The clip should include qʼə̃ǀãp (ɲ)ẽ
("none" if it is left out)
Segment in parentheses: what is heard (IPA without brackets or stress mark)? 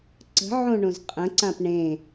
ɳ